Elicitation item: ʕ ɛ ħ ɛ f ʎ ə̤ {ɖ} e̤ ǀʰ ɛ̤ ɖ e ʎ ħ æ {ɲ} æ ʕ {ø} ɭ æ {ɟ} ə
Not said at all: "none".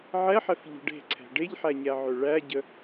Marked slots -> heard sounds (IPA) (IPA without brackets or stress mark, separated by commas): ɖ, ɲ, ø, ɟ